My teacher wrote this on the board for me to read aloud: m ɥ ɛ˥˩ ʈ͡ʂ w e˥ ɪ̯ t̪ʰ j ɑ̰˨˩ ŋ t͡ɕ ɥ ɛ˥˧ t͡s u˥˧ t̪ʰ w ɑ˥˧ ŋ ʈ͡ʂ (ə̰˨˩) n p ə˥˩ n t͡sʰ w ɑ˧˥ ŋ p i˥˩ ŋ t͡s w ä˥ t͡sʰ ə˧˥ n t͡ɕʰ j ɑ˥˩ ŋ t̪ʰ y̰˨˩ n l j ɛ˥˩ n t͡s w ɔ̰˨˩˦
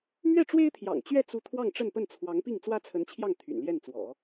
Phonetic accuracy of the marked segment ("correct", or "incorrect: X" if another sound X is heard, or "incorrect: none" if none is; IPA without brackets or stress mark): incorrect: ə˥˧